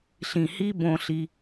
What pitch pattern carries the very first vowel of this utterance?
low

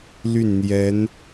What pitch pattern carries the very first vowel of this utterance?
falling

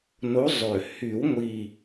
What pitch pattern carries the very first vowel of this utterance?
rising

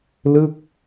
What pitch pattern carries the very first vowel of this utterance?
falling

